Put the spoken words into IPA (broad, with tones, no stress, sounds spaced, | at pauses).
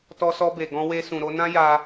t ɔ˧ s ɔ˧ b e˨ ɡ ɔ̃˧ w e˧ s ũ˨ ɾ o˧ n ã˦ j a˧